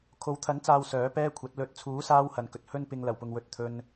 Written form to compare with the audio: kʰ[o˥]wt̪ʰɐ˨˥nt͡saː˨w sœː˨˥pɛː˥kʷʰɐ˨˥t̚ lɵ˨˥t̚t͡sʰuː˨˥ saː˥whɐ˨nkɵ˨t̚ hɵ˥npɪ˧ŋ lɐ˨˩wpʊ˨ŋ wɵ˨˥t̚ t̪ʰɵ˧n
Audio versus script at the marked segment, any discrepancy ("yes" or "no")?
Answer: yes